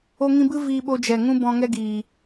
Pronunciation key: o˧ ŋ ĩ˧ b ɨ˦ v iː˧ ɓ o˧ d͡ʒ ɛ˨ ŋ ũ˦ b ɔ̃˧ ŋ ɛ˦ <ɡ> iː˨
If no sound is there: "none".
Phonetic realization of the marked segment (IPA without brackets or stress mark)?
ɡ